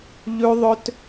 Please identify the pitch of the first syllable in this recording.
high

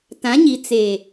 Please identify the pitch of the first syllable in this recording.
rising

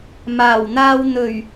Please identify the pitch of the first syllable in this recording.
low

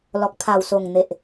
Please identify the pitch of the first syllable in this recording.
low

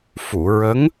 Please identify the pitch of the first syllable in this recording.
low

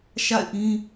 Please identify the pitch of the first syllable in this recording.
falling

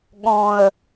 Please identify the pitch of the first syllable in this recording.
low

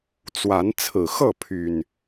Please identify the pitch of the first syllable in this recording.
rising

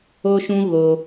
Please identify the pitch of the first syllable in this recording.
high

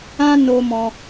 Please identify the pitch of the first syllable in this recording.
high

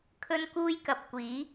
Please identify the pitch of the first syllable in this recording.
high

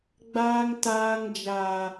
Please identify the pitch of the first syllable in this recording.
high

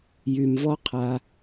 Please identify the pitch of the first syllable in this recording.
low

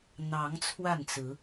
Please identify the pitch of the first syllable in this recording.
rising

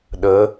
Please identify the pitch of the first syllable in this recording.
rising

